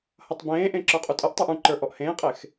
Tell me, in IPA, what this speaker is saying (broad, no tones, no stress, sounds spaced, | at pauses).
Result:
h ʌ tˤ b ẽː ʔ ẽ ǁ ə˞ qʼ u tʼ ʌ ʔ tˤ ə˞ ʔ ũ ǃ ə˞ ʔ ɔ ʔ h ẽː qʼ e x